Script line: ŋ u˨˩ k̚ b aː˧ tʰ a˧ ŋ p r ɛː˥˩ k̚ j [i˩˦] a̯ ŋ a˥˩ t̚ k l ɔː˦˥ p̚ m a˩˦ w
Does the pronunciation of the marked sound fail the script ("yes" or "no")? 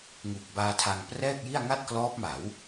yes